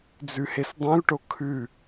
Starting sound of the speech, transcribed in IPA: d͡z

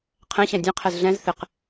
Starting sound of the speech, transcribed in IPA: qʰ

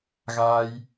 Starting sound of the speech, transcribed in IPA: ɣ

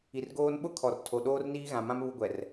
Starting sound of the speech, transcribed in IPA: i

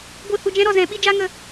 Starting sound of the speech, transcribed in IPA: ɡʷ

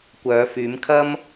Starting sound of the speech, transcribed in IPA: kʷ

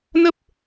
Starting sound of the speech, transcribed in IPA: n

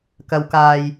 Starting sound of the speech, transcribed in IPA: k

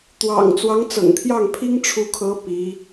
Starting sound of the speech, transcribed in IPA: t̪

